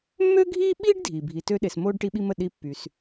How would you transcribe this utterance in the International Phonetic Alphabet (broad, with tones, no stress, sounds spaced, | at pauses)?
mː ø˥ ɡʱ iː˥ ɓ iː˥ ɖ dʱ iː˩ bʱ i˨ t ø˦ ɗ e˨ s m oː˥ ɖ ʈ i˦ ɓ i˦ m ə˩ ɗ i˦ pː y˩ s